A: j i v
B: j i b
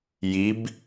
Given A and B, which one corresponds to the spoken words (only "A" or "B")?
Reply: B